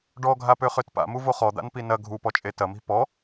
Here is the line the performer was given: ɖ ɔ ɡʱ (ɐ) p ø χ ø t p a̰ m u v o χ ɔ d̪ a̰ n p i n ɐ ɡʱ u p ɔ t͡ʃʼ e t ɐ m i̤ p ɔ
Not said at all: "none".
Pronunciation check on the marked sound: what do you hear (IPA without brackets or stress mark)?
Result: a